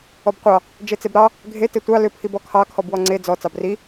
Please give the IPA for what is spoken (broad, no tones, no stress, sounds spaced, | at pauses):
ɔ b qʷ ɑ | d͡ʒ e t͡s e b ɾ ɑ | ɡʱ e t e tʷ ɑ l ʏ pʰ i b ɔ kʰ ɑ kʰ ɔ b w ɔ ŋ͡ǀ e d͡z ɔ t͡s ɑ b r i